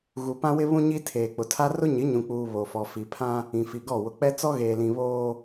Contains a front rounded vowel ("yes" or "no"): no